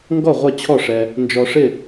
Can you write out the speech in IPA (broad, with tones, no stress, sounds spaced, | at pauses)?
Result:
ŋ ɡ ɔ˥˨ ʁʷ ʌ˥˨ t͡ɕʰ ɔ˥˨ ʂ ɛ˧ | n d͡ʒ ɔ˧ ʂ ɪ˥˨